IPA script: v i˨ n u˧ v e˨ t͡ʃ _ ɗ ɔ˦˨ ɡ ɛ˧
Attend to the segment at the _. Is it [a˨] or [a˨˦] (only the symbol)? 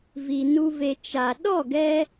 a˨